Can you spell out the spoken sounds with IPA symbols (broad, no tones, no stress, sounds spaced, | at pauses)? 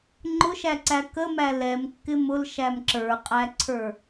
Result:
ŋ͡ǃ ʊ ʃ æ ǀ æ k ə m æ l ɛ m kː ɪ m ʊ l ʃ æ m ǁ ə˞ qʼ æ ǀʰ ə˞